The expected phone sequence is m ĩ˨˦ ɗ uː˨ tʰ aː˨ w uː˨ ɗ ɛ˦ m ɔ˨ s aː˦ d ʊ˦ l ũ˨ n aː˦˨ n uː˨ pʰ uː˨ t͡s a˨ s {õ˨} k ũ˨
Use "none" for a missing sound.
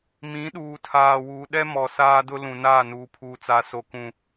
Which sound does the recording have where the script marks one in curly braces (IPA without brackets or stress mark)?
o˨